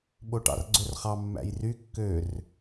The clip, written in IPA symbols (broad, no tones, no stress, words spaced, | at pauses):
ɓoʈɑ̰rɡ͡ǀɵrχɑ mːæ̰jry kːør